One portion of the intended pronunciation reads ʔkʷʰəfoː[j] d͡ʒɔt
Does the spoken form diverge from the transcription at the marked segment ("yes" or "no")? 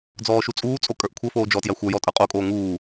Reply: yes